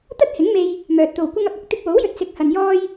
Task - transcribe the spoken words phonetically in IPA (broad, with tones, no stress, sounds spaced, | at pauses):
t̪ ɐ˥ t̚ h ɪ˨˥ ŋ m e˧ j | m œː˨ t̚ t̪ o˨ w kʷ ɐ˥ ŋ ɐ˨ p̚ ɐ˧ k̚ t̪ ɪ˧ k̚ w o˨˥ w j ɵ˨ t̚ s ɪ˨˥ k̚ h ɐ˨ n j ɔː˥ j